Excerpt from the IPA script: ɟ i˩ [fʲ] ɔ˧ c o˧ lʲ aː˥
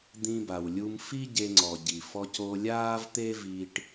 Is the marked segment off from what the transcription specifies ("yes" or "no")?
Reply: yes